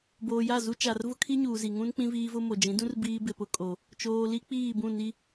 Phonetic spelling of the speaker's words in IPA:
b oː˨ j a˦˨ z u˦ t͡ʃ a˨ r v ʊ˦ kʰ i˦ ɲ uː˨ z i˨ ŋ ũ˦ n k͡p ĩ˦ v iː˦ v ʊ˦ m o˨ d͡ʒ ĩ˨˦ d ũ˦ r b iː˦ b ɪ˨ p ʊ˦ kʼ o˨ | t͡ʃ oː˨ l i˦ k͡p iː˦˨ b ũ˦˨ n i˦

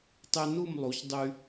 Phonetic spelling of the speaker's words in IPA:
tˤ y˧ n u˥˧ m lˠ u˩˧ ç dˤ y˧

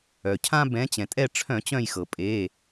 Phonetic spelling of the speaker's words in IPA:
œ˩ cʰ ã˦ b ɛ̃˨˦ t͡ɕ ɛ̃˩ tʼ ɛ˦˨ ʈ͡ʂʰ œ̃˧˩˧ t͡ɕ œ̃˦˨ j x ɤ˩ pʼ e˩˧˩

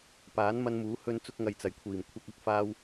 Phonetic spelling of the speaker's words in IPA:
p aː˨˥ n m ɐ˧ n m uː˨˥ h ɵ˧ n t͡s ʊ˧ k̚ ŋ ɐ˨ j t͡s ɐ˨˩ j kʷʰ iː˨˩ m kʷʰ ɐ˧ k̚ ɐ˥ k̚ f aː˧ w

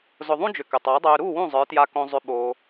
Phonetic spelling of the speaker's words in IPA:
z ʊ˨ ðˤ ũ˦ d͡ʒ ʏ˨ k ʏ˨ tˤ ʊː˨˦ dˤ øː˧ ɾ u˦˨ w ũ˦˨ zˤ ə˞˨˦ t j a˧ k õ˧ zˤ ʏ˧ ɓ oː˧

